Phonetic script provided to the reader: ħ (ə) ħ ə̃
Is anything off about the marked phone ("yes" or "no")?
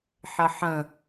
no